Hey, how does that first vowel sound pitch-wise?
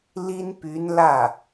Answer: high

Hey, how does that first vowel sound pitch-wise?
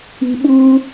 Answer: low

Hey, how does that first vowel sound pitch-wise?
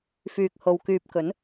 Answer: low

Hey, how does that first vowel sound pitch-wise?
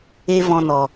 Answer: high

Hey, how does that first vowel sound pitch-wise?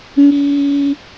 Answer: high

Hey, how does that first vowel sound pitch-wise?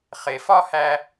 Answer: low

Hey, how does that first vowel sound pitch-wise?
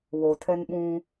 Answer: low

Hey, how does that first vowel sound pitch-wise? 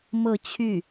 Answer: falling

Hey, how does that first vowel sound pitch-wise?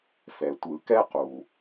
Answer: low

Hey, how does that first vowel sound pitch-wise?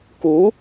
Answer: rising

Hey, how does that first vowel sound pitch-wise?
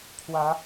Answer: rising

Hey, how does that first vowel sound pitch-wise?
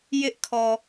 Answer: high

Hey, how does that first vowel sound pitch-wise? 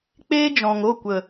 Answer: high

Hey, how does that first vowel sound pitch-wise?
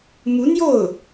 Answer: rising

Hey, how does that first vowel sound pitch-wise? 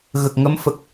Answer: low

